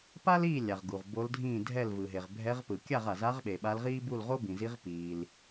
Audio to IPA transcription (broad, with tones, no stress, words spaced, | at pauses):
pa˥liː˥˩lʲa˩ʁ ɡu˩ʁbo˧˥ldʱĩː˥˩ dʱɛ˥˩lvɯ˩ɦe˩ʁ bʱɛ˧˥ʁpɯ˩ kʲa˥˩ʁa˩za˧˥ʁɓe˩ ɓa˧˥lʁiː˥ bu˥˩lʁo˥bĩ˩zi˧˥ʁ piː˩l